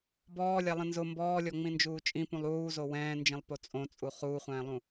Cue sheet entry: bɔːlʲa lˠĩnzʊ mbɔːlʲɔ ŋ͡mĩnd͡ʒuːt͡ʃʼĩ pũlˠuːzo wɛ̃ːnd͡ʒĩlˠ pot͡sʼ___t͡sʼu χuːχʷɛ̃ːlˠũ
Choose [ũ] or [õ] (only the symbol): õ